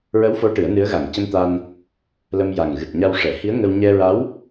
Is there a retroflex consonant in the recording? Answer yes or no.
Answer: yes